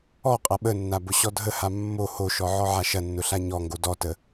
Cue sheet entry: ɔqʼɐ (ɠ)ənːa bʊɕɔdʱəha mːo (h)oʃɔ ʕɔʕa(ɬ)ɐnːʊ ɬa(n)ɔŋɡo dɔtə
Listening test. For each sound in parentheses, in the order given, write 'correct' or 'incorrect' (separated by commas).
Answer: incorrect, correct, incorrect, incorrect